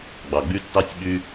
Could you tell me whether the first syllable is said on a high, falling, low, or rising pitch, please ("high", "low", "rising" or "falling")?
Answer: low